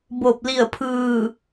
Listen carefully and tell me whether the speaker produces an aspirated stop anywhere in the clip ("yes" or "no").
yes